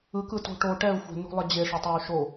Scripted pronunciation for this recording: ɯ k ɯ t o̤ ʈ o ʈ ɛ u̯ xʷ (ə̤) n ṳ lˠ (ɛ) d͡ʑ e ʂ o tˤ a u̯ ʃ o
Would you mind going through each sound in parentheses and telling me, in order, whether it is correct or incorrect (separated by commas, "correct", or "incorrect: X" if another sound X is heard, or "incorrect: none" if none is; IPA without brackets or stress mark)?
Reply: incorrect: ɛ̤, correct